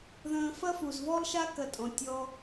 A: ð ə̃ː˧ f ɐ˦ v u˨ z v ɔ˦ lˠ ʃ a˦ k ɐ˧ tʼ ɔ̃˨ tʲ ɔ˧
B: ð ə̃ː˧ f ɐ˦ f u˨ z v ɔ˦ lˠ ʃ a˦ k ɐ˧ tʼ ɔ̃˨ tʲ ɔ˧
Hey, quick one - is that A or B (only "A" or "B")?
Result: B